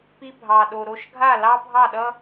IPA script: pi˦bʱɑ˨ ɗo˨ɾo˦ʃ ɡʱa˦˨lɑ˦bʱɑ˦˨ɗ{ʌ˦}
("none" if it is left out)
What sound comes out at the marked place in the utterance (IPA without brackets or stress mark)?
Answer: ʌ˦